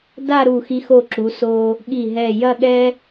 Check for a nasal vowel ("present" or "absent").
absent